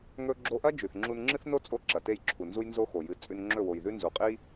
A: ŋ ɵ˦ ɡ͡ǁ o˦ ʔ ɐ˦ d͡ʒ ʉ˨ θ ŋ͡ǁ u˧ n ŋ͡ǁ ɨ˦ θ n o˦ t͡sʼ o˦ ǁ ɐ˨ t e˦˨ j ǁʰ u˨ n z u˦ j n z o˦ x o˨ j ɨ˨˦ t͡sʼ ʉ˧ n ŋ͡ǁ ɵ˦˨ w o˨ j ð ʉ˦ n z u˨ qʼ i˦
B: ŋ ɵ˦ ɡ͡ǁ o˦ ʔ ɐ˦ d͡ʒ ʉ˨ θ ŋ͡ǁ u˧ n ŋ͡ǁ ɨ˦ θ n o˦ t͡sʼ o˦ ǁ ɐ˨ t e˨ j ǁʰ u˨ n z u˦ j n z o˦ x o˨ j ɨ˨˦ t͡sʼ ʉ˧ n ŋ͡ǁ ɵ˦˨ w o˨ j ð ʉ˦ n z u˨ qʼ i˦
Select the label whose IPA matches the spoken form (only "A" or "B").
A